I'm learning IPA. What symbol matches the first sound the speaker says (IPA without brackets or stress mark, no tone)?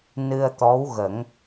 n